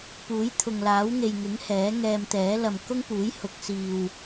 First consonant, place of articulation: labial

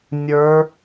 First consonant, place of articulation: alveolar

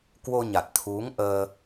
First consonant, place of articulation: velar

